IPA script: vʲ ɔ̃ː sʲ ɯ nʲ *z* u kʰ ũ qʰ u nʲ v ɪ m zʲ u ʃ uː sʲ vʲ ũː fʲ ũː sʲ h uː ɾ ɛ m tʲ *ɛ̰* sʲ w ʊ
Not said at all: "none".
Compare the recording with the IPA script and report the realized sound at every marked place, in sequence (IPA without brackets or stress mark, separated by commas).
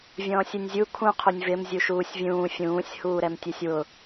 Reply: zʲ, ɛ